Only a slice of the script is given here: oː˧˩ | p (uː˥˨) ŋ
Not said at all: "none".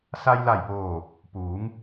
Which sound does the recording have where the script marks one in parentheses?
uː˩˧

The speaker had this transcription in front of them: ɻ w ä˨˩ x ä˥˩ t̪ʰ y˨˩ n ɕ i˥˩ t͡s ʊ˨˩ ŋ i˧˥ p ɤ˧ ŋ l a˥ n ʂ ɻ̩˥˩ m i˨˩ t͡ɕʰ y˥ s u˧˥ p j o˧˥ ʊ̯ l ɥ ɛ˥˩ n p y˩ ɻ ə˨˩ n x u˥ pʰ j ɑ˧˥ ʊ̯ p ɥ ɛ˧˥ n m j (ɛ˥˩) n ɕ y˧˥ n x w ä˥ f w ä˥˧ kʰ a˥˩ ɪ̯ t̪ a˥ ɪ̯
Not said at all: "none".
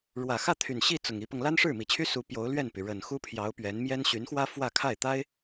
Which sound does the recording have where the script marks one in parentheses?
ɛ˥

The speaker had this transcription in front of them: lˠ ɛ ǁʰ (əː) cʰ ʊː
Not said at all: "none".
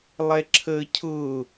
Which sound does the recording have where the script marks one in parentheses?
əː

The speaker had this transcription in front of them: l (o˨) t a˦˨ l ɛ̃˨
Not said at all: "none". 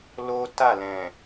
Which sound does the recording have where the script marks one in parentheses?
o˦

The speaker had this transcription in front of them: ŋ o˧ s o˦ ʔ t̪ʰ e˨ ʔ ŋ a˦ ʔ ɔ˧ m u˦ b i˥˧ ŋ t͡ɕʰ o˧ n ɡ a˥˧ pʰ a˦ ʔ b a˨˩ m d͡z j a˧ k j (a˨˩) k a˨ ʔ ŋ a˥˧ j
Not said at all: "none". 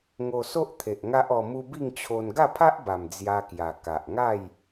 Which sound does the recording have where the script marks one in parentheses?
a˨˩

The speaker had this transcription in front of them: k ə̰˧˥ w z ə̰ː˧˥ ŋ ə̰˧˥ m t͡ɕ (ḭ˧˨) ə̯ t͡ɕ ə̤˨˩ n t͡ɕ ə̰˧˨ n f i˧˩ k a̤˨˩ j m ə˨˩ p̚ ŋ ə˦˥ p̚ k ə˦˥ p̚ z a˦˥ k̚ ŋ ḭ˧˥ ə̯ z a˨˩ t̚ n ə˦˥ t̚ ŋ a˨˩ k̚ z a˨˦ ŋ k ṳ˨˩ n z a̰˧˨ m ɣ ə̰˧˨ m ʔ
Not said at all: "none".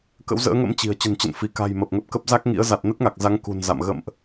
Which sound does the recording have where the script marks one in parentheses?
i̤˨˩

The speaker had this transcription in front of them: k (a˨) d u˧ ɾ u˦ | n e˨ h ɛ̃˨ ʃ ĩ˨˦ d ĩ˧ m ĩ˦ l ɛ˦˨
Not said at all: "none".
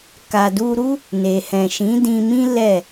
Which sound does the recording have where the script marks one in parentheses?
a˨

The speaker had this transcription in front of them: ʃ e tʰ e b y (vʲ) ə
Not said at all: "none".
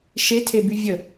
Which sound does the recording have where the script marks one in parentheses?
vʲ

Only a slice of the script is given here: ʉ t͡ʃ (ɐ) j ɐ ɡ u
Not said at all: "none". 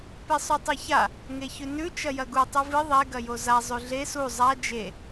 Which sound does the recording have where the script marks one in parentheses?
ɐ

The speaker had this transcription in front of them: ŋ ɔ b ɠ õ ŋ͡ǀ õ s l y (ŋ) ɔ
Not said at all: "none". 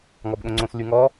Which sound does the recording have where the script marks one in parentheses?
ŋ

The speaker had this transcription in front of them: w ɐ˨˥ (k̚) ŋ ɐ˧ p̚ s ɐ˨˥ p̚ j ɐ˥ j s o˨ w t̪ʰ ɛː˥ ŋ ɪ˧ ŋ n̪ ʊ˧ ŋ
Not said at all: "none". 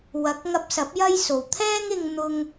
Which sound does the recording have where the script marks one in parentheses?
k̚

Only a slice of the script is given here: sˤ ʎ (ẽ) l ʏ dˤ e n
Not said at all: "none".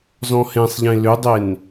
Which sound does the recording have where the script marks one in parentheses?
ẽ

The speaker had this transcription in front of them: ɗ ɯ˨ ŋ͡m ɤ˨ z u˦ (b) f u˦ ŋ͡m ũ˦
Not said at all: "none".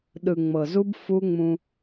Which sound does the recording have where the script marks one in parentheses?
b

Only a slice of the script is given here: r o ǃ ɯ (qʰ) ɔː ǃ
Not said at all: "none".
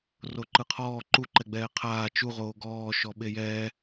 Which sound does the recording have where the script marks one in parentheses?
qʰ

